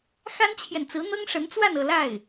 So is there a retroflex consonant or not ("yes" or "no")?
yes